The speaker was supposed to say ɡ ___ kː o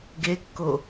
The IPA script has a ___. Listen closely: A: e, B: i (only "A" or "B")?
A